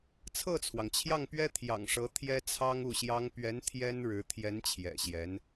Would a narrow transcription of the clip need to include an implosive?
no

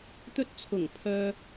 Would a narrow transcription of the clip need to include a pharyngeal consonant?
no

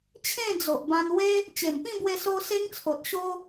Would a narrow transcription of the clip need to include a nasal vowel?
yes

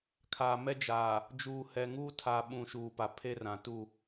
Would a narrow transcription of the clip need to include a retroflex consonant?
no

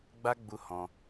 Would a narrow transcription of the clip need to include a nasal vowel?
yes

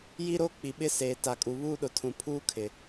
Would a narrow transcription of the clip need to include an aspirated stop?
yes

